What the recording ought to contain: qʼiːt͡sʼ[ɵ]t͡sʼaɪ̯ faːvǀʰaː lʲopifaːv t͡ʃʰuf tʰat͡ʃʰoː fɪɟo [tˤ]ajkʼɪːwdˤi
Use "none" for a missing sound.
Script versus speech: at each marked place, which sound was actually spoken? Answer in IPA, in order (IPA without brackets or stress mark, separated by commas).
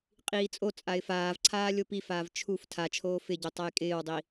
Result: o, tˤ